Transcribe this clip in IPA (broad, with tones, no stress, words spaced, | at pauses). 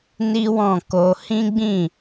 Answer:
ni˦wɔ̃˦˨ko˧ hĩ˦ɡ͡bĩ˦˨